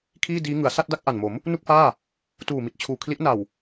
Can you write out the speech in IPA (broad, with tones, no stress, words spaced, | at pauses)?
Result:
kʰiː˥˩ diː˦˥ ŋɯ˩˦a̯ sa˥˩t̚da˥˩k̚ ʔa˨˩nmo˩˦m | nu˥˩k̚faː˥˩ | tuː˨˩mi˨˩t̚t͡ɕʰuː˨˩ kʰli˦˥ʔna˨˩w